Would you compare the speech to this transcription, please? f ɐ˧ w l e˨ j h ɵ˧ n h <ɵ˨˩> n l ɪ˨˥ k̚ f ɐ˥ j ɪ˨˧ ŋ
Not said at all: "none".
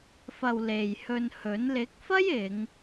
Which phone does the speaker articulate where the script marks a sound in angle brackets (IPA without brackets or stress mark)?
ɵ˨˥